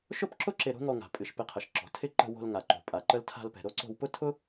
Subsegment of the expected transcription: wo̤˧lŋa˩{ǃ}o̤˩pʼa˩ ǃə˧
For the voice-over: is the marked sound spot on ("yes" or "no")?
yes